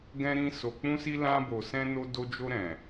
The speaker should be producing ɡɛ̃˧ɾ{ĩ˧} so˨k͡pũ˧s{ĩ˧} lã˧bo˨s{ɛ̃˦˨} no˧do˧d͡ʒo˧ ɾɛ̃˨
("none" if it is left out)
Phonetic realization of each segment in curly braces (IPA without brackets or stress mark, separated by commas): ĩ˧, i˧, ɛ̃˧